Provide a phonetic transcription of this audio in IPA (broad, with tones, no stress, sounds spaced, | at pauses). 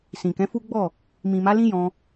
s ĩ˨ k ɛ̃˨˦ f u˦ ɡ͡b ɔ˦˨ | m ĩ˨ m a˨˦ l ĩ˦ j ɔ̃˧